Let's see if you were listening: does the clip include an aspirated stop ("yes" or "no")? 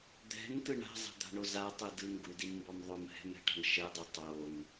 no